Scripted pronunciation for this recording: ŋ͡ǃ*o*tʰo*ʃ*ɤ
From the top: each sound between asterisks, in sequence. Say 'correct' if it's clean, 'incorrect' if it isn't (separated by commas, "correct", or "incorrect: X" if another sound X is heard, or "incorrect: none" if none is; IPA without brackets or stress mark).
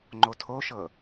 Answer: correct, correct